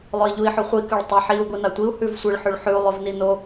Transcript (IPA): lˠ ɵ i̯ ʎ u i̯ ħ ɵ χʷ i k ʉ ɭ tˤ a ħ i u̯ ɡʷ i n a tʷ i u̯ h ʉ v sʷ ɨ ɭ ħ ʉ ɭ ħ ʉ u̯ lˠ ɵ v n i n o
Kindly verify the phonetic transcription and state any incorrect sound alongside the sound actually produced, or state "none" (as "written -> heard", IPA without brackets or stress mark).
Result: none